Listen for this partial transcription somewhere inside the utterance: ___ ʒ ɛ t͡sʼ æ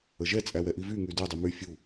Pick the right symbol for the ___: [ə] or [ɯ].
ə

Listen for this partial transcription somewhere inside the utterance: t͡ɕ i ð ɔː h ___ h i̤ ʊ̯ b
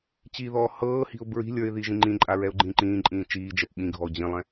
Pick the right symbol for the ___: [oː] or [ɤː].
ɤː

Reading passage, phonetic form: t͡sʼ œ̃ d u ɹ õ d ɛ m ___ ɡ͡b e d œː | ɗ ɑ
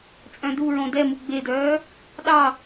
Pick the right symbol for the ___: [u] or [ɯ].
u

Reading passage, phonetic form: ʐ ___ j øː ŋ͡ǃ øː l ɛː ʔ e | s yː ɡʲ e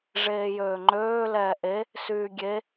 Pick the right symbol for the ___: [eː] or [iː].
eː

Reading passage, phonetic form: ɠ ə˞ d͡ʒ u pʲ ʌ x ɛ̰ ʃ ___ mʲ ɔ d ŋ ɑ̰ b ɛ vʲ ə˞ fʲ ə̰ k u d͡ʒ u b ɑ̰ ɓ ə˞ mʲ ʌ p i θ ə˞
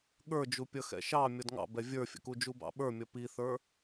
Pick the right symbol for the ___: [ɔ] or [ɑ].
ɑ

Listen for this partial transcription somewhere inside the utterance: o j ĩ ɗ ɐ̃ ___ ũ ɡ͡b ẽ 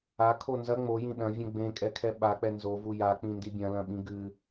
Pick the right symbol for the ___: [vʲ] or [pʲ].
vʲ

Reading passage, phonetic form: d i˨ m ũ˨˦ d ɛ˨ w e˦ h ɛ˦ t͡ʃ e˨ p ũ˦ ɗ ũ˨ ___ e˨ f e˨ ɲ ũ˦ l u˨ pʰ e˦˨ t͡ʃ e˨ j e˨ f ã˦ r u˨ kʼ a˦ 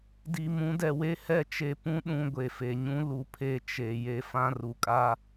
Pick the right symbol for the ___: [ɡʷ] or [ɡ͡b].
ɡʷ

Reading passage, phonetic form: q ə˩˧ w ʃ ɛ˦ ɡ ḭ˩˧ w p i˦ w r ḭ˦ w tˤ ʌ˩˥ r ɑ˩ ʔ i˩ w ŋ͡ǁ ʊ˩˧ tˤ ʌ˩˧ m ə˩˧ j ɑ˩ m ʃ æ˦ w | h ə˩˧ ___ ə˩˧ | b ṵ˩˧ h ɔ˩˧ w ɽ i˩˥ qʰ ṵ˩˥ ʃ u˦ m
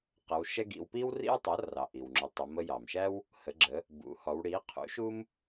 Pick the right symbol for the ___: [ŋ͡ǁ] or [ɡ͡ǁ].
ɡ͡ǁ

